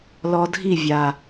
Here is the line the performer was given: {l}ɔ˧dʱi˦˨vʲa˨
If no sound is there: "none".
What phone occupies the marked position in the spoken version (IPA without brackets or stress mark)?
l